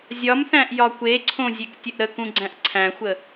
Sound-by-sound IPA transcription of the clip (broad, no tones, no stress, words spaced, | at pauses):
zʲɒmθæ̃ʔ jɒkʷeǀʰõ zʲektʲəʔɾəkũ ɡ͡ǀæ̃ʔǀʰæ̃xʷə